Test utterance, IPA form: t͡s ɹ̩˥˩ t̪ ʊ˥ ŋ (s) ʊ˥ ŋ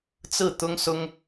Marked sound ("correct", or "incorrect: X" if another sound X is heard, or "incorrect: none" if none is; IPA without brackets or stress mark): correct